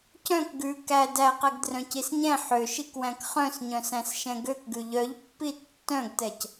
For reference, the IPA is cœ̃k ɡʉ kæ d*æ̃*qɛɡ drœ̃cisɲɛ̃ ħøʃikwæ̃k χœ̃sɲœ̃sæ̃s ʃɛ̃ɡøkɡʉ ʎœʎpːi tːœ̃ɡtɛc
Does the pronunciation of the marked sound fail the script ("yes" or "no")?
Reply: yes